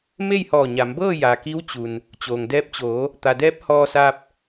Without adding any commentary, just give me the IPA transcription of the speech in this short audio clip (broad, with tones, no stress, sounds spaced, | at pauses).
m e˥˨ j h ɔː˧˩ ɲ a˩˧ m b ɤː˥˨ j a˩ k i˧˥ w t͡ɕ u˩ n | t͡ɕ oː˩ ŋ d ɛː˧ p̚ t͡ɕ oː˩˧ | t̪ a˩ d ɛː˧˥ p̚ h ɔː˧ s aː˧ p̚